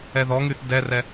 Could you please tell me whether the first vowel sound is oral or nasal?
oral